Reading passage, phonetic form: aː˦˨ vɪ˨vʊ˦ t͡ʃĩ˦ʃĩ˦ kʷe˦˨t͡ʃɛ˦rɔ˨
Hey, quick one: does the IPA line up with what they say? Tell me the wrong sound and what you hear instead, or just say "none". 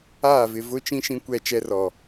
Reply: e˦˨ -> ɛ˦˨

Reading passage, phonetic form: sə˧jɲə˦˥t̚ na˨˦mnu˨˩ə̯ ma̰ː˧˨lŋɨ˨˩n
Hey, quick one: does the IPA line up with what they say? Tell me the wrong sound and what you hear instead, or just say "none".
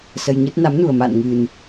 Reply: l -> n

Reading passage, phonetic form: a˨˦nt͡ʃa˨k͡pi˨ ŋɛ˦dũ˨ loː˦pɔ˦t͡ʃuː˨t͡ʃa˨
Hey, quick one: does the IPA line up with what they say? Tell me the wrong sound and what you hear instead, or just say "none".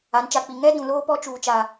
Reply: none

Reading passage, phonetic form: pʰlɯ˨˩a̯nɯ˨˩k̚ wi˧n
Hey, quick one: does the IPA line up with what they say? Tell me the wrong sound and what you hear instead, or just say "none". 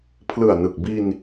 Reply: w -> b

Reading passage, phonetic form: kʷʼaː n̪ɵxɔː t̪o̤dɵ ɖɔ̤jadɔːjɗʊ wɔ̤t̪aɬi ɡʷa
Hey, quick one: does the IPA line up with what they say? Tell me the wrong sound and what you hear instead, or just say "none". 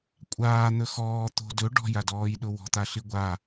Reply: none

